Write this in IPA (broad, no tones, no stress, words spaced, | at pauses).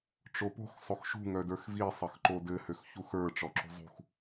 ʈ͡ʂopo̤x sˤoxʃṳ ŋœdə˞xvi sˤɘxǃodɘ høxçuxə˞ ʈ͡ʂɔǁṳzˤṳx